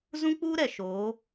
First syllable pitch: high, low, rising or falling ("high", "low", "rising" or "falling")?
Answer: high